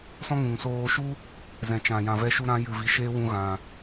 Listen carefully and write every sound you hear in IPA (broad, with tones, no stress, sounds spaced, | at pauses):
s ɔ̃˦ ŋ ũ˨ ŋ s oː˧ ʃ u˦ | z ɛ̃˨ t͡ʃ ã˨ j ã˨ v ɛ˧ ʃ u˧ ɾ ã˧ j ɨ˨ v i˨ ʃ eː˦ w ũ˧ ɣ ã˨